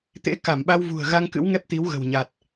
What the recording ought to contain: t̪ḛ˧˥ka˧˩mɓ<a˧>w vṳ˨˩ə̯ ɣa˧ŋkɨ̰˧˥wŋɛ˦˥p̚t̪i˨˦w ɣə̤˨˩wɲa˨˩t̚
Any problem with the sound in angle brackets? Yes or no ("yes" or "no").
no